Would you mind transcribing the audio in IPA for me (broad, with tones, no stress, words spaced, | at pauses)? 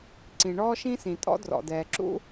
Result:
ǀĩ˩ɳɔː˥ʃĩ˥sĩ˩ tʼɔ̰˥drɔ̰˩dɛː˩ ǁṵ˥